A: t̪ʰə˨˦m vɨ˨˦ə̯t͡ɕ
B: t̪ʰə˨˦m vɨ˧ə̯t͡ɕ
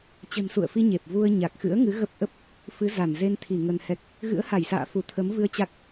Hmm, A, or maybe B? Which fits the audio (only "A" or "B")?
B